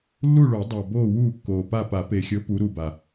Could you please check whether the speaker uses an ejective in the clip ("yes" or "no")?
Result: no